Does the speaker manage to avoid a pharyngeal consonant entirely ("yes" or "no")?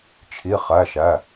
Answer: yes